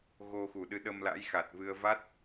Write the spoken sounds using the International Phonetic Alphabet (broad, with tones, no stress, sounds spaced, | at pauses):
ɣ o˧ x u˨˩ ɗ ɨ˨˦ ɗ ə˧ m l a̰˧˥ j x a˨˩ t̚ v ɨ˧ ə̯ v a˦˥ t̚